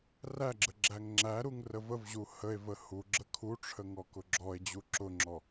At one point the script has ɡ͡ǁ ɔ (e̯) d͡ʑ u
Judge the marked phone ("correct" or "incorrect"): correct